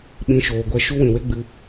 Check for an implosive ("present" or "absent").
present